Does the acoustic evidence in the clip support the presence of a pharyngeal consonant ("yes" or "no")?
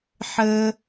yes